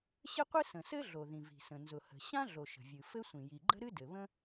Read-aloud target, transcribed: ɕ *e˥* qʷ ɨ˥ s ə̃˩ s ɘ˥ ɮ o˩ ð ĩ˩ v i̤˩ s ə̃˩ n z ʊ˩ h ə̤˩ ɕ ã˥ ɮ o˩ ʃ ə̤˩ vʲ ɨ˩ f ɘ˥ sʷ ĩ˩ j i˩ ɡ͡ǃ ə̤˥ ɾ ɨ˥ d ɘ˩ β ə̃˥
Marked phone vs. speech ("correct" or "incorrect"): incorrect